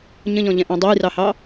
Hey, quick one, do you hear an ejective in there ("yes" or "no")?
no